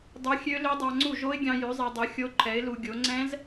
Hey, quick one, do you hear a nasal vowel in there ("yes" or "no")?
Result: yes